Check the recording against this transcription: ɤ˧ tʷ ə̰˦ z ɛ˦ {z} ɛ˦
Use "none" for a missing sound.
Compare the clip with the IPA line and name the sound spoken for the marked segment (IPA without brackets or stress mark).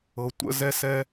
s